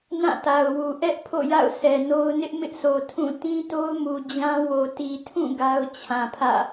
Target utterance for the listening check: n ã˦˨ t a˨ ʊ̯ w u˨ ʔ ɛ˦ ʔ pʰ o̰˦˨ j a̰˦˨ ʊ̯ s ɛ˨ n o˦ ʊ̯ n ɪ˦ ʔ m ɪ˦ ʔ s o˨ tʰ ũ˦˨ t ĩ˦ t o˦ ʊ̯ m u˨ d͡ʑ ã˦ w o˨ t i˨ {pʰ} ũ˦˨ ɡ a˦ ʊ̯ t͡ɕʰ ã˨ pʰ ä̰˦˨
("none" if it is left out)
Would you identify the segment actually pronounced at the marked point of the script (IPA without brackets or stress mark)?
tʰ